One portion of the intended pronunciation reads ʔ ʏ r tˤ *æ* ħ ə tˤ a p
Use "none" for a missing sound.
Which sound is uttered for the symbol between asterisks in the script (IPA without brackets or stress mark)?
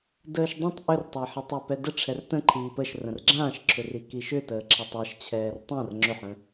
æ